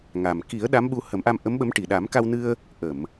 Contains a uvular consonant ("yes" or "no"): no